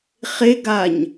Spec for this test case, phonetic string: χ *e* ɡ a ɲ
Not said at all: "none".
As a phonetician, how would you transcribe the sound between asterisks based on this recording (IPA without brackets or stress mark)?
e